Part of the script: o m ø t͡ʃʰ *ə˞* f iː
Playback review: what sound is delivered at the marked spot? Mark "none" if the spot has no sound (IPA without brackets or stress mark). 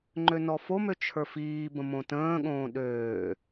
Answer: ə˞